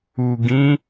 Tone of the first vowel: low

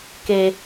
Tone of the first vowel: low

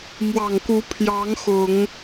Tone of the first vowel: low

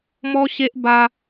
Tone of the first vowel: high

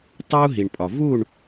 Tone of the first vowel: high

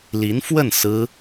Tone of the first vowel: rising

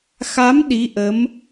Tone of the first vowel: rising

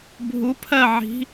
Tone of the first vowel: rising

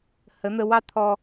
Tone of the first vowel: rising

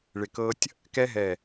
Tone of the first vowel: low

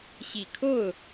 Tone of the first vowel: low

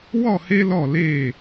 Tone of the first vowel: falling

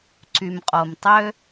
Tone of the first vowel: low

